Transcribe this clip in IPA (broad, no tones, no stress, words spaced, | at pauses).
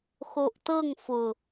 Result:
xoʔtɤŋ fʊ